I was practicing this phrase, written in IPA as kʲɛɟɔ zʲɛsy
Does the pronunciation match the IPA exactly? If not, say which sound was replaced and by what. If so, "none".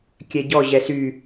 zʲ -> ʑ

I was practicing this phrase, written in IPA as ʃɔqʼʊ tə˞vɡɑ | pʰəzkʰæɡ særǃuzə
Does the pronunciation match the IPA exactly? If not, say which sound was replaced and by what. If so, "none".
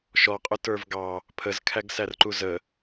none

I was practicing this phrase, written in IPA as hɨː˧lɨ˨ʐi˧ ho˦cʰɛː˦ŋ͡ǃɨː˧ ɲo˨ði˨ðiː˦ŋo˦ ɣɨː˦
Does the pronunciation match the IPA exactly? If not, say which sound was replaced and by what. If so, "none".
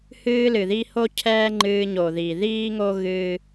ʐ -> ð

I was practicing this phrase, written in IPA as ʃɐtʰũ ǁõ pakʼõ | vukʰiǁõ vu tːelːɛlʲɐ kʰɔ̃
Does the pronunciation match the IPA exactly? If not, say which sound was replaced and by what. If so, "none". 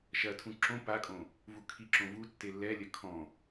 none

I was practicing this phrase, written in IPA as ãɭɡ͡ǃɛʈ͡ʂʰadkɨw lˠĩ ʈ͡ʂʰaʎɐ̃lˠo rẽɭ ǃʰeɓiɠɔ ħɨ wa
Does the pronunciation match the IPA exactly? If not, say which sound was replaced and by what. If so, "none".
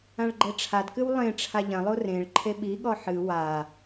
ĩ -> ẽ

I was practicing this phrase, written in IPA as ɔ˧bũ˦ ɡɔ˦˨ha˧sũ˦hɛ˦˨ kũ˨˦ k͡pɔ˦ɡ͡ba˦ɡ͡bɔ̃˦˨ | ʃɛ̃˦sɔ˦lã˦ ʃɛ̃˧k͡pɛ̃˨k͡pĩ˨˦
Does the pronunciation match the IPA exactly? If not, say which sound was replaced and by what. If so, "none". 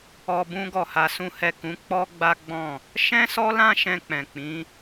none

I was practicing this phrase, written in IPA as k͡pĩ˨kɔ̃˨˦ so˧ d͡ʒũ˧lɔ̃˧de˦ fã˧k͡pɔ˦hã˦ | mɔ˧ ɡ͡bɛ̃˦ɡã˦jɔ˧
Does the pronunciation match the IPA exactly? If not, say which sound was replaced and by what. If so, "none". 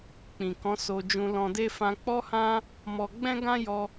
none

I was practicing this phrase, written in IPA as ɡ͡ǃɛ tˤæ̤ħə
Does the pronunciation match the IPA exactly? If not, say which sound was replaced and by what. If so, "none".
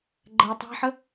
none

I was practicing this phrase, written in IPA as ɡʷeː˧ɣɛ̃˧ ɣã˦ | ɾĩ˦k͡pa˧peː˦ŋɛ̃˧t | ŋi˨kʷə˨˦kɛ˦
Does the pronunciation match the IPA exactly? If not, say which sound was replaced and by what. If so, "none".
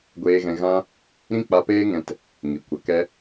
none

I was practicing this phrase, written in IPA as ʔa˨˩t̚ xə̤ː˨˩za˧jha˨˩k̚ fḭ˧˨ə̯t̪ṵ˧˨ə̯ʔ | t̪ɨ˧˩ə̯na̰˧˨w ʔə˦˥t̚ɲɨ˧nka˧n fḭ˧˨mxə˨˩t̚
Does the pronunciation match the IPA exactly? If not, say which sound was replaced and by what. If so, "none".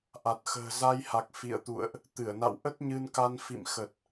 none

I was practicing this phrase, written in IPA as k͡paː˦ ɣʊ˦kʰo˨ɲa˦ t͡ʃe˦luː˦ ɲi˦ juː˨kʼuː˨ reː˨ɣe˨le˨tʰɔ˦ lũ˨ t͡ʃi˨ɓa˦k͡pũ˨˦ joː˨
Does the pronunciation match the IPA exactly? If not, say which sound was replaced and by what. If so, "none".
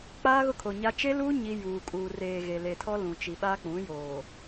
none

